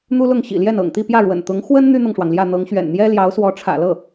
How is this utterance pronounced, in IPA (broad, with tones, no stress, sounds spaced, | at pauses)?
n̪ u˥ l ʊ˥˩ ŋ ɕ ḭ˨˩ l j ɛ˥˩ n ɤ̰˨˩ ŋ t̪ i˥˧ p j ä˥˩ ɻ w ə̰˨˩ n t̪ ʊ˧˥ ŋ x w ə˥ n n̪ y˥ n̪ ɤ˨ ŋ ʂ w ɑ˩ ŋ l j ä˥˩ n̪ ɤ˧˥ ŋ ɕ ɥ ɛ̰˨˩ n n̪ j ɛ˥ l j ɑ˧˥ ʊ̯ s w ɔ˧˥ ʈ͡ʂʰ ä̰˨˩ l ɤ˥˩